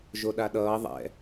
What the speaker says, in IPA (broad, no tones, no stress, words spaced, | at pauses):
ʒoɗaɗʌː ðˤɛ̰